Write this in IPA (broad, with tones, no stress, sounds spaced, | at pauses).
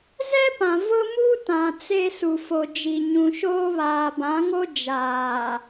z ɛ˦ p ã˨ v ʊ˦ m u˦ t ã˨ t͡s e˦ s u˨ f o˨ d͡ʒ i˨ ɲ ũ˨ ʃ oː˦ β aː˨ b ã˨˦ ŋ o˦ d͡ʒ aː˨